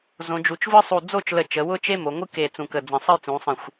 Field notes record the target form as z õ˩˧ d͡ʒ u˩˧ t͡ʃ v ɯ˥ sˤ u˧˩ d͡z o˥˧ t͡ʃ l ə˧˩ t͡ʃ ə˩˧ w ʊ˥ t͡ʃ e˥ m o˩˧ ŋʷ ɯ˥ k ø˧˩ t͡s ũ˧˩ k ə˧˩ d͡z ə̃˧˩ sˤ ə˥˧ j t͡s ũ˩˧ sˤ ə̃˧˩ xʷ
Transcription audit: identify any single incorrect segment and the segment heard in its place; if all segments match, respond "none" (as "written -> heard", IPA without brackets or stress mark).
ø˧˩ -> e˧˩